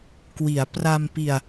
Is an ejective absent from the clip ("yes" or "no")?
yes